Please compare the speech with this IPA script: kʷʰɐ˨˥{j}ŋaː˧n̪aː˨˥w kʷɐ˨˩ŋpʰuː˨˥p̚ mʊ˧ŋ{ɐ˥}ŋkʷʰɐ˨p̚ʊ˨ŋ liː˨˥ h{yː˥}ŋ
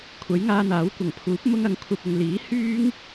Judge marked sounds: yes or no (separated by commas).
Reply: yes, no, yes